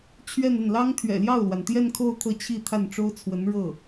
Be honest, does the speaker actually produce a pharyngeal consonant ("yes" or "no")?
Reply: no